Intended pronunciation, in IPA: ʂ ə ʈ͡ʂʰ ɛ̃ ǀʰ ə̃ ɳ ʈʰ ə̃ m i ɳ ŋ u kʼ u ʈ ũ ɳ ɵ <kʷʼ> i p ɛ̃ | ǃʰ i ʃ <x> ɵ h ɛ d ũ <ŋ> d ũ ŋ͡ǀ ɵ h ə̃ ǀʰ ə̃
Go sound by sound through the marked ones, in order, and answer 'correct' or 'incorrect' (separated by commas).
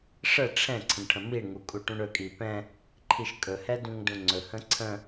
incorrect, incorrect, correct